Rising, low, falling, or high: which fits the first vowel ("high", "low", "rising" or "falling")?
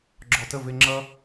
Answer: low